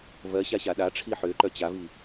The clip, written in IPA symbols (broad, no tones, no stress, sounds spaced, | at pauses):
v ɜ ɕ a ɕ a ɗ a ʈ͡ʂʰ i ħ ʏː ǃ œ t͡ɕ a v i